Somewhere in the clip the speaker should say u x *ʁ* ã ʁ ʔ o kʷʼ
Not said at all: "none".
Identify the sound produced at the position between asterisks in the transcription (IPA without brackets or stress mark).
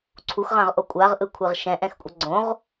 ʁ